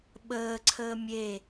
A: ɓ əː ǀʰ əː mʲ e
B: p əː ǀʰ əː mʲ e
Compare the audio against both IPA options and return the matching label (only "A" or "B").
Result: A